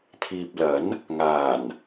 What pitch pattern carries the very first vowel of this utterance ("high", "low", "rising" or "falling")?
low